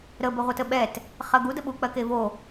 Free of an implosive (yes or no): no